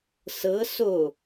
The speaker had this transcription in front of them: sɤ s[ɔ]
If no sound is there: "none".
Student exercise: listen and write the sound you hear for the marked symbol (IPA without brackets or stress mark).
o